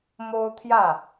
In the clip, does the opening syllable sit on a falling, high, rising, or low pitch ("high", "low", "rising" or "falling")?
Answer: high